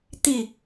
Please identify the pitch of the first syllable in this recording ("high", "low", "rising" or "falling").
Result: falling